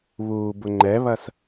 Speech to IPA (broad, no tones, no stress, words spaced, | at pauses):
βuːbʊŋ͡ǃɛβɐs